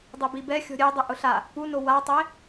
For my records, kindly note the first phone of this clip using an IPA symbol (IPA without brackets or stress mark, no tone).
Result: dˤ